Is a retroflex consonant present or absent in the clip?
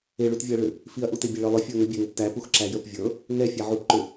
present